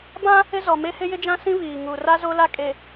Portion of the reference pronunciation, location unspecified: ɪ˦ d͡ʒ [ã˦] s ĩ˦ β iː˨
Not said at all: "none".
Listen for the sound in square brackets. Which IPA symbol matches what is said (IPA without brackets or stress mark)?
ã˦